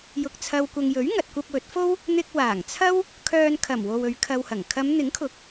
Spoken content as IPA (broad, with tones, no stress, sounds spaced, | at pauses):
j ʊ˨ k̚ t͡sʰ ɐ˨ w kʷ ɐ˨ ŋ j ɵ˨˥ ɥ ŋ ɐ˨ t̚ kʷ ɐ˧ p̚ w ɵ˨˥ t̚ f o˥ w | n̪ ɪ˧ k̚ w aː˨˩ ŋ t͡sʰ ɐ˥ w | kʰ œː˧ n kʰ ɐ˨˩ m w o˨ w ɵ˨˧ ɥ kʰ ɐ˧ w h ɐ˨˩ ŋ kʰ ɐ˨˧ m n̪ ɪ˨˥ ŋ kʰ ʊ˨˥ k̚